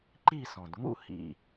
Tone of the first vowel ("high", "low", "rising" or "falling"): falling